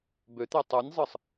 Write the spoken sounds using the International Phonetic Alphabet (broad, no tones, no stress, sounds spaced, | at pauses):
b ø t̪ e tˤ u nʲ zˤ ɯ sˤ